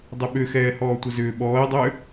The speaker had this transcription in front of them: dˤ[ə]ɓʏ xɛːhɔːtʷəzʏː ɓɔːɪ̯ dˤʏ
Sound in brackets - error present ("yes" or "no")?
yes